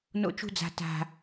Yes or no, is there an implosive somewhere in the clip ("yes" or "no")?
no